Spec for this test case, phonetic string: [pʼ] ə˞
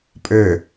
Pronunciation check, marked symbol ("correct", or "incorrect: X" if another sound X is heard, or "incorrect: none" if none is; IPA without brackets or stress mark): correct